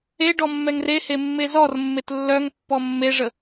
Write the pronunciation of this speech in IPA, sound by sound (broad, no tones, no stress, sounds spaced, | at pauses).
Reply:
e ɖ ɔ mː ɛ ŋ r e h e mː e z ɔ r mː e t lː œ ŋ pː ɔ mː e ʐ ə